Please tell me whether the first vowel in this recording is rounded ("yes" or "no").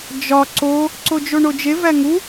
yes